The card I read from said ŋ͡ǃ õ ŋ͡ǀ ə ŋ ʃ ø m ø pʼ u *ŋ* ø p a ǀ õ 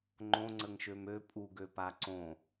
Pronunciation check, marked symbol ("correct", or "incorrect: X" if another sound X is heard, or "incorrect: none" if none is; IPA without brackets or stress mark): incorrect: ɡ